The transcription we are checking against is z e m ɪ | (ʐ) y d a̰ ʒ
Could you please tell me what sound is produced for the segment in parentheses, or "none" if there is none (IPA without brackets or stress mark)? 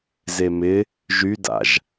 ʒ